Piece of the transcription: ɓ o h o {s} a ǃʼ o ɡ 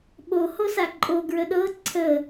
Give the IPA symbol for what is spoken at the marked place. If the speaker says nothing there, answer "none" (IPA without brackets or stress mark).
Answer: s